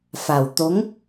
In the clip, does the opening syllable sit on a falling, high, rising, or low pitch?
low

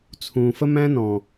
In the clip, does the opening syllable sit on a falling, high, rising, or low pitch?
low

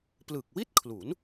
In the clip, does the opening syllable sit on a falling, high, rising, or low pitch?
low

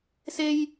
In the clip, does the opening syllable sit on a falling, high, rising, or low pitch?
high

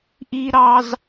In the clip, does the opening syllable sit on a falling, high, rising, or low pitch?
high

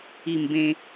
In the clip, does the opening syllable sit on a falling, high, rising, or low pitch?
falling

